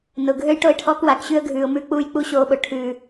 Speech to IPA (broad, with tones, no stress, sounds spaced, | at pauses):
n ʊ˨ ɡʱ ø˦ j ʈ o˦˨ ɪ̯ ʈʰ ɔː˦ k w a˨ k ɕ ʉ˧ ə̯ ɡʱ ʉː˨ ʊ̯ m ʉː˧ k͡p uː˧ j k͡p u˧ ɕ oː˧ ɓ ʊ˨ ʈʰ ʉː˨